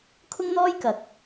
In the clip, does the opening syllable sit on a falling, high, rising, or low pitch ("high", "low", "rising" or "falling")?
high